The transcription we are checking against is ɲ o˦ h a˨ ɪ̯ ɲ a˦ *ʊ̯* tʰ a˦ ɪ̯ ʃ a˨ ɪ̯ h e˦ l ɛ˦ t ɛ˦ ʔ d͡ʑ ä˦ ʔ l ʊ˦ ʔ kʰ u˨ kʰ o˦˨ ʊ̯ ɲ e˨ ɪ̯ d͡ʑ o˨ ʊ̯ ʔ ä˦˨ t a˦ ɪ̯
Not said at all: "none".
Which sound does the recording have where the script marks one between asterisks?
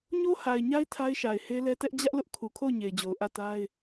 ɪ̯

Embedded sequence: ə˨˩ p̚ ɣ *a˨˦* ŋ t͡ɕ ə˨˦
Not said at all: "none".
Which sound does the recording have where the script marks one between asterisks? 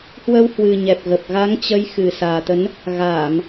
a˨˦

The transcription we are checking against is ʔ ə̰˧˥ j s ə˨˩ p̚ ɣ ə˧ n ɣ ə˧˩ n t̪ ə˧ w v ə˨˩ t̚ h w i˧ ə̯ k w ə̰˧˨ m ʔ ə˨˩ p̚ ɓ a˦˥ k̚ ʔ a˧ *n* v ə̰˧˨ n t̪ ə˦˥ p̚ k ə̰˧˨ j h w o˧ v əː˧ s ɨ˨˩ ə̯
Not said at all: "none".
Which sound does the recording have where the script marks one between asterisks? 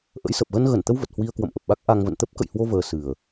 ŋ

